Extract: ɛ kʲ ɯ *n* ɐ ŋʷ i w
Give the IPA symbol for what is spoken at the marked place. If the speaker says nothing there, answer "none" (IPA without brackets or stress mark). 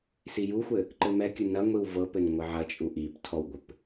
n